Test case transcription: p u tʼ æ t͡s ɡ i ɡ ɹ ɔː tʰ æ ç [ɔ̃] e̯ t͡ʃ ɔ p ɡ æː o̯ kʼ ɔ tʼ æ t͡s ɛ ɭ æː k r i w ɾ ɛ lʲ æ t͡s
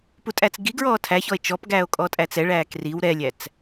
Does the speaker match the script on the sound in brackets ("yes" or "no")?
no